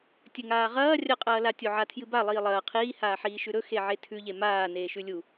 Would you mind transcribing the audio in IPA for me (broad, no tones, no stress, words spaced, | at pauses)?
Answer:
tʲɵŋaːʁɐː rʲɐqʼɐːla tʲoʕatʰjɨba lˠiːlˠɐː qʰiː haːħiːʃʉɾɵ xeʕetʰʉʎe maː neːʃʉlʲu